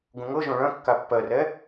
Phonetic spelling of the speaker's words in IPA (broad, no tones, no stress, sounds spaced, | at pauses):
ɡ ũ ŋ ɤ ʒ õ ɭ œ̃ kː a pː ɜ r ɛ